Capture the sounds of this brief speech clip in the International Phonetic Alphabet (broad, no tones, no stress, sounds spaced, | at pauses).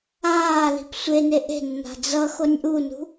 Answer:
aː l i̤ p sʷ e n e ʔ e̤ nː a̤ d͡z ʌ x o nʲ ʔ u n ṳ